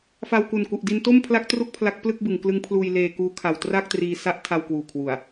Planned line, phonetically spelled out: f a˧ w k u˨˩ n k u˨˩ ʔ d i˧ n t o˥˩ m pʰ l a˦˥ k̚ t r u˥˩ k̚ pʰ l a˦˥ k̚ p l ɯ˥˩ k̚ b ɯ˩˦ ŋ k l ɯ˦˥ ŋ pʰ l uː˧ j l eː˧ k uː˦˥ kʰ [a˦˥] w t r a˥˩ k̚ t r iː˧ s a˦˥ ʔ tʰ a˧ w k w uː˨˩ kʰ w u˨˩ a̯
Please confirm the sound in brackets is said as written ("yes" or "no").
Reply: no